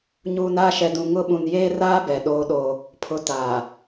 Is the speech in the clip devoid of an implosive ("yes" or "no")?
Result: no